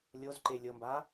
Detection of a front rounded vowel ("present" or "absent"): absent